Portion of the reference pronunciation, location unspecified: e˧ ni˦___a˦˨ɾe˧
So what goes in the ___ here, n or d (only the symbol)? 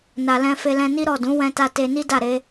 d